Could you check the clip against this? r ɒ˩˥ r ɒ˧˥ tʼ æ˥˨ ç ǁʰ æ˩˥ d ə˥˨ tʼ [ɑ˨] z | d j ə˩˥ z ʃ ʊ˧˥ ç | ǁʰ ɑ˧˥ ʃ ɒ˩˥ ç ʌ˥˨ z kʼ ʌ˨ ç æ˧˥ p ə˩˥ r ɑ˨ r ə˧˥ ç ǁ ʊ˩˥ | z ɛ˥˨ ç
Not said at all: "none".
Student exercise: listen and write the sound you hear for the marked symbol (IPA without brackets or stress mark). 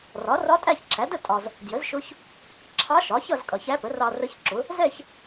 ɒ˨